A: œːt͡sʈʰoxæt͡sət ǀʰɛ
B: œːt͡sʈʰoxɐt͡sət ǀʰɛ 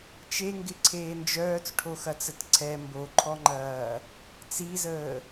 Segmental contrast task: B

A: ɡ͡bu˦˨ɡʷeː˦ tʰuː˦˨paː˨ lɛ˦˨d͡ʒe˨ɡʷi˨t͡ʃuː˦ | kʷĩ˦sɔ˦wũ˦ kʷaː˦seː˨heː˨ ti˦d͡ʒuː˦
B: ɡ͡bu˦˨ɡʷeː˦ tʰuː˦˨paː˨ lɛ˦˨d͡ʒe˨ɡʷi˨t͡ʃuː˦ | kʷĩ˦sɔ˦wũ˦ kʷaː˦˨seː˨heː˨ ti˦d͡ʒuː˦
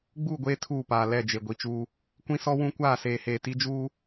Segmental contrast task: B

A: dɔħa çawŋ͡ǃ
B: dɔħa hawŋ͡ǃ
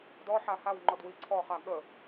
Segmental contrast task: B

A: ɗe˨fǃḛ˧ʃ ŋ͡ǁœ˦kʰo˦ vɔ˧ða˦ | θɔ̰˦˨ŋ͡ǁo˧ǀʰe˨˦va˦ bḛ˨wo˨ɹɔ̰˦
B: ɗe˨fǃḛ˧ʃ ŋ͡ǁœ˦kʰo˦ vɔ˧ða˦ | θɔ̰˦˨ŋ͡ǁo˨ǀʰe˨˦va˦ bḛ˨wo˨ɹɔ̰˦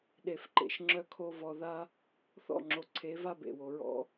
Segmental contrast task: B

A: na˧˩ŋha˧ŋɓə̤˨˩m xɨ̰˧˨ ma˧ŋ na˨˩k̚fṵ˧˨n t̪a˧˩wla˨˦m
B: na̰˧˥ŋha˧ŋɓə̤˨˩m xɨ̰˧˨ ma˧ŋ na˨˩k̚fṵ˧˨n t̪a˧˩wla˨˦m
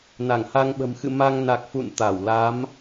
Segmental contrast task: A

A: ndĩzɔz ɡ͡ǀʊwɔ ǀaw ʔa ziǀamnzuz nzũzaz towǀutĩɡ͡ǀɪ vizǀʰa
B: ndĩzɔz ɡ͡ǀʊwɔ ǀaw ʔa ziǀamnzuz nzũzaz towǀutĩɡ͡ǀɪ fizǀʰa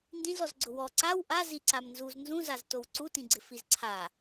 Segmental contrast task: B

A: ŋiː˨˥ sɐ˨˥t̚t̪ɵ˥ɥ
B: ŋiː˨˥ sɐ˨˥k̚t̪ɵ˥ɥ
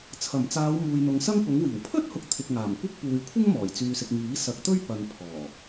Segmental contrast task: B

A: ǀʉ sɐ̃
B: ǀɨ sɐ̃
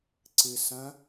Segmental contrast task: B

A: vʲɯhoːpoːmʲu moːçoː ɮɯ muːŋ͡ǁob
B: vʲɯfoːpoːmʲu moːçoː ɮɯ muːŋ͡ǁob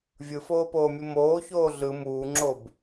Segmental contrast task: B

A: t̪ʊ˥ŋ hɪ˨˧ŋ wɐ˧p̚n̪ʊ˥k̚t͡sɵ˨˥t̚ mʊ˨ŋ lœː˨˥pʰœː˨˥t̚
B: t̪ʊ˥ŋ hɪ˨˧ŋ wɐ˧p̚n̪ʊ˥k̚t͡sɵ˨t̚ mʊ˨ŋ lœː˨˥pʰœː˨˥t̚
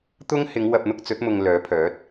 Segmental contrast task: A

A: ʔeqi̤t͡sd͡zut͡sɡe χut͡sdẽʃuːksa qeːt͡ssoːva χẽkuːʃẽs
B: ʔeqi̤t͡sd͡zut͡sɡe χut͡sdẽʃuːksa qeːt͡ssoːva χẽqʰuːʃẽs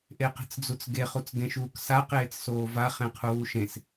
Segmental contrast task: B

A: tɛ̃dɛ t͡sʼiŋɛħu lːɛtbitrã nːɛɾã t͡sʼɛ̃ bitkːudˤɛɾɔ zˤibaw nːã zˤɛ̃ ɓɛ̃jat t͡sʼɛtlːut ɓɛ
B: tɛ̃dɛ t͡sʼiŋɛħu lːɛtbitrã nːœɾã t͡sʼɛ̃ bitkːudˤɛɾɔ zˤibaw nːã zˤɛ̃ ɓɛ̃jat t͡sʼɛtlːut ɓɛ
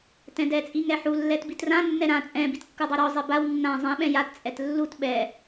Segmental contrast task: A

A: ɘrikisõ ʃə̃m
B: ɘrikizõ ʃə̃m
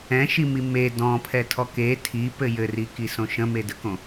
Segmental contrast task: A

